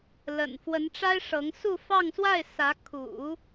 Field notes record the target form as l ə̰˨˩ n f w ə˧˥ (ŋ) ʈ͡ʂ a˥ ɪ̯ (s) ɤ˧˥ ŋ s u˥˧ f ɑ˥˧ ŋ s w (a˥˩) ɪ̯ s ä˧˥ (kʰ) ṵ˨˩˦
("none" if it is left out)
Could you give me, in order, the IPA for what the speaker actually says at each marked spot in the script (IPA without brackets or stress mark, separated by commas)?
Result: n, ʂ, a˥˩, kʰ